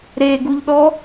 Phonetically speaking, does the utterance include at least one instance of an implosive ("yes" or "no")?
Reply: yes